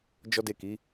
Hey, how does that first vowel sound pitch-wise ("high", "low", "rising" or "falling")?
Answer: high